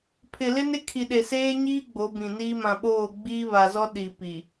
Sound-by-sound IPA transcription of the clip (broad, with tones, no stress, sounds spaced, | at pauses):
pʰ ɪ˨ l ɪ˦ n ɪ˦ kʰ i˨ ɗ e˨ s eː˦ ɲ iː˦ ɡ͡b o˨˦ b ĩ˨ n iː˦ m ã˨ ɓ oː˦˨ ɡ͡b iː˦ β a˨ z ɔ˦ ɗ i˨ p i˨